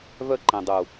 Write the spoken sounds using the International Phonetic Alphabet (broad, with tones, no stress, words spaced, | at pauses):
vœ˦ǃɛ̃˨dˤu˨